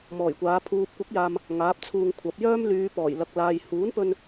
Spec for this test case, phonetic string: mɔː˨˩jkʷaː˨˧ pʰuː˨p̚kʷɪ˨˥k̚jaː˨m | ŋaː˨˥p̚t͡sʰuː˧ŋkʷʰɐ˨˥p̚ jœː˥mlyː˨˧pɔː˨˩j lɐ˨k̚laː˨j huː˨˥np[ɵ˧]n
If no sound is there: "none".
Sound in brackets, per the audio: ɵ˧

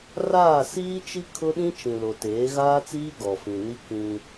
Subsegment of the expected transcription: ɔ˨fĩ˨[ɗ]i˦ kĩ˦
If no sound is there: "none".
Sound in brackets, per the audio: n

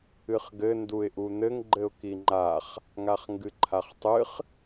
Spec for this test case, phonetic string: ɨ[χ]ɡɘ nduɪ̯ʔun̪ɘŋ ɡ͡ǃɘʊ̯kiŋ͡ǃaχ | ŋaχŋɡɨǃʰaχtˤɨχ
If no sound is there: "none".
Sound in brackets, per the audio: χ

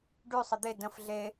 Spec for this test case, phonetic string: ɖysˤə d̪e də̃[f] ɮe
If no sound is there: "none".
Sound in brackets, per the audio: f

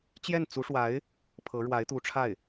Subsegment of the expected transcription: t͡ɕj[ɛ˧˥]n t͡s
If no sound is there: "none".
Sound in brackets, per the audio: ɛ˥˩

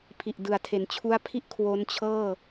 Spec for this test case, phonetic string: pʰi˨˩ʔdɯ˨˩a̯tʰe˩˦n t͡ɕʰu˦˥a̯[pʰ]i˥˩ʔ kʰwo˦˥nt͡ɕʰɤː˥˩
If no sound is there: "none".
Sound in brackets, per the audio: pʰ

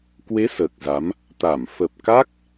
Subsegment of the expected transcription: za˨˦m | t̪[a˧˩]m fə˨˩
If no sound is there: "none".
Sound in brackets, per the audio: a˧˩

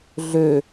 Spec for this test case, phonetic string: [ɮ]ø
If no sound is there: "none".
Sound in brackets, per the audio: ɮ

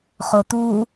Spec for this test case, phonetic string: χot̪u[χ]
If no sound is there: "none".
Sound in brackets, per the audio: none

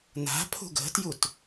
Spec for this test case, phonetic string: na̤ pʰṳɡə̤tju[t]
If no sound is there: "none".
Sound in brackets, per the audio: t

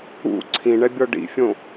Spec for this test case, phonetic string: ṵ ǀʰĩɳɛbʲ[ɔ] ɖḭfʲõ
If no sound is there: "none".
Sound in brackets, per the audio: ɔ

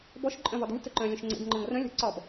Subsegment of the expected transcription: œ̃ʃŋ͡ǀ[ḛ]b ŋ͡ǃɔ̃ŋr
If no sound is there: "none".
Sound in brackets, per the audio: ḛ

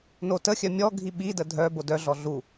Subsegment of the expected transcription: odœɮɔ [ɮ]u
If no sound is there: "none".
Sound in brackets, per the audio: ɮ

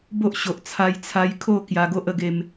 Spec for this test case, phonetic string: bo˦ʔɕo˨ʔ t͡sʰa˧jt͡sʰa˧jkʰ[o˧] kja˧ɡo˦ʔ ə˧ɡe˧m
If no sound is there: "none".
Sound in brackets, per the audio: o˥˧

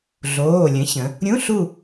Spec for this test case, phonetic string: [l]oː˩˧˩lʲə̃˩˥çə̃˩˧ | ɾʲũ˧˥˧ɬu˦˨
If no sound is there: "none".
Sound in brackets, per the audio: ɮ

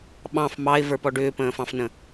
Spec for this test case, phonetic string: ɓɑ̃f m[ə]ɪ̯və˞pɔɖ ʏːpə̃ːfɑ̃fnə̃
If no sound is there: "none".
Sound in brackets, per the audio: ɑ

